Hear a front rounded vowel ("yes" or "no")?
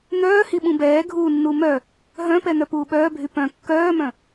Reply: yes